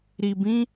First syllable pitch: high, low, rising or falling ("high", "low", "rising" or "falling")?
low